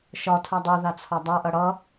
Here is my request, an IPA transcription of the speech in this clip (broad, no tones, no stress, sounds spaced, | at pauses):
ʃ ɒ tʰ a dˤ o ð a t͡sʰ ɒ dˤ a ʔ ʌ ɽ ʌ